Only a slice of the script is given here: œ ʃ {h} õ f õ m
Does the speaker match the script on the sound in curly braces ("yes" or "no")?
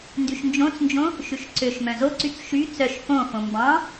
no